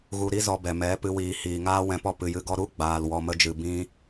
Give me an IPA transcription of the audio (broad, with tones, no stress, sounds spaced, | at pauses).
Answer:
ɣ u˧ ɾ i˦ z ɔ˧ b ɛ˨ m ɛ˨˦ p ɨ˧ w iː˨ h iː˨ ŋ aː˦ w ɛ̃˧ p ɔ˦ p ɨ˨ j ɨ˧ ɡ ɔ˦ ɾ u˦ ɡ͡b aː˨ l w ɔ˧ m ə˦ d͡ʒ ɨ˧ b ĩ˦